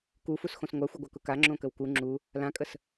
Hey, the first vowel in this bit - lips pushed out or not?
yes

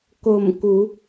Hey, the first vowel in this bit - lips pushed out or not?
yes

